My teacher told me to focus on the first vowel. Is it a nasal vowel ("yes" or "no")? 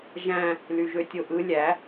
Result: yes